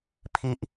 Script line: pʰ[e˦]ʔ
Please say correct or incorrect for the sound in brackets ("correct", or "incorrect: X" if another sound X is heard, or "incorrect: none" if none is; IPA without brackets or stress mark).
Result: incorrect: i˦